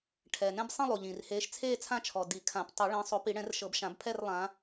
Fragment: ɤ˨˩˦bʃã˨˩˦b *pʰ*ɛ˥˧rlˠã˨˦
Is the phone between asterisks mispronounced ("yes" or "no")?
no